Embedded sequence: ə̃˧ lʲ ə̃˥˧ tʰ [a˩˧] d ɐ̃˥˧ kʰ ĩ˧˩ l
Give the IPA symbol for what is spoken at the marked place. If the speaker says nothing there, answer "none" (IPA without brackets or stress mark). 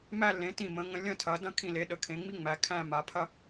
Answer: ɐ˩˧